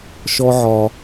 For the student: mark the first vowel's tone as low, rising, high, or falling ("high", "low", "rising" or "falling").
high